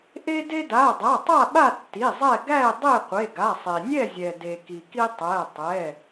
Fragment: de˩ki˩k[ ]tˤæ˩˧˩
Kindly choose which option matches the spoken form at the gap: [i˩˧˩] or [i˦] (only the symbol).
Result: i˦